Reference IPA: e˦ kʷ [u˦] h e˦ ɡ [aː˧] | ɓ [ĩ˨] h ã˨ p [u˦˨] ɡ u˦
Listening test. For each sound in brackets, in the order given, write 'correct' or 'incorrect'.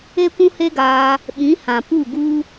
incorrect, correct, incorrect, correct

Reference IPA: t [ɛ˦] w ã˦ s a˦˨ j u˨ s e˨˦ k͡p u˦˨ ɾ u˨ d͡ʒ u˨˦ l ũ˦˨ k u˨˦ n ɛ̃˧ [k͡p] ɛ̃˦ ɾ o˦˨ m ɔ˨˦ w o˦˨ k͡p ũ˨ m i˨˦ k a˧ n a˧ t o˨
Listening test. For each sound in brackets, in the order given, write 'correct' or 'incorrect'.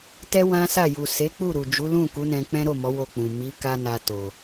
correct, correct

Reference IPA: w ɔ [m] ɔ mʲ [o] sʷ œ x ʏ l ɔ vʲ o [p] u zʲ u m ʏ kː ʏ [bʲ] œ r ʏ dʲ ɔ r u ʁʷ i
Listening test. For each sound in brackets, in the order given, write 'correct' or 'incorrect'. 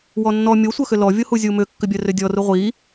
incorrect, correct, incorrect, correct

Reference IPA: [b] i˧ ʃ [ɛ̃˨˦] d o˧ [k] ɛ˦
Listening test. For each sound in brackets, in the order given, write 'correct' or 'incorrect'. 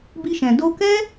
correct, incorrect, correct

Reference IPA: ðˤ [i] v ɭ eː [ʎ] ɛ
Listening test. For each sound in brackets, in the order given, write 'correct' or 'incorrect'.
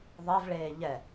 incorrect, correct

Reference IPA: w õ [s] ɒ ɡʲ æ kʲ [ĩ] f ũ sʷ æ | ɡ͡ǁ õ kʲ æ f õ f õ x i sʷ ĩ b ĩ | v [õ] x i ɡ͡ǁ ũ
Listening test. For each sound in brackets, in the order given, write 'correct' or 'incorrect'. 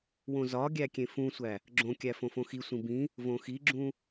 incorrect, incorrect, correct

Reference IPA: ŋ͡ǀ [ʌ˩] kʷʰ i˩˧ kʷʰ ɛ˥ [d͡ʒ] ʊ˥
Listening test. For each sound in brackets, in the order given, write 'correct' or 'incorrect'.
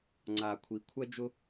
incorrect, correct

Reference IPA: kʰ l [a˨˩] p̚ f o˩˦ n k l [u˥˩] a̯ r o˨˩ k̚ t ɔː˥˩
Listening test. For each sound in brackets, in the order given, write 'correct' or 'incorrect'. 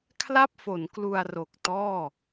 incorrect, incorrect

